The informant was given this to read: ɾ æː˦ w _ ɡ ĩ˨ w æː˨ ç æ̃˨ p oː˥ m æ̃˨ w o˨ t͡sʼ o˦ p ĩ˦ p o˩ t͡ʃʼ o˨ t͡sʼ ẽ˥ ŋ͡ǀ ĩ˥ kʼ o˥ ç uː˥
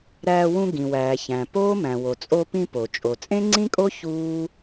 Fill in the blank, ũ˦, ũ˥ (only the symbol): ũ˦